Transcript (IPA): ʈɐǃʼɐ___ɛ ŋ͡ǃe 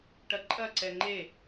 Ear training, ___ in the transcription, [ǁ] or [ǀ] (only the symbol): ǀ